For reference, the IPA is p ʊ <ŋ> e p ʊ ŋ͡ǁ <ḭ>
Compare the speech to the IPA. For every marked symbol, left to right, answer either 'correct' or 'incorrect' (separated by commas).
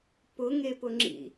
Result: correct, correct